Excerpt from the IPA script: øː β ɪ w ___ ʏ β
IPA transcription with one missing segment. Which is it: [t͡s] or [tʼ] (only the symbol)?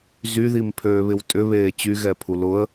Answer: tʼ